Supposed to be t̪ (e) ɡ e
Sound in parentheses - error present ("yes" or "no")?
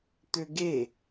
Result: yes